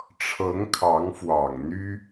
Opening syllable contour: rising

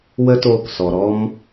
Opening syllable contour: high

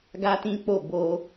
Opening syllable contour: high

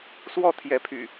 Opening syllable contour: falling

